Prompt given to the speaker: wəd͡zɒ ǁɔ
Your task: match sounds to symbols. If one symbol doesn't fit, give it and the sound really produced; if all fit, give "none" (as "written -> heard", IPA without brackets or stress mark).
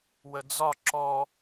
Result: none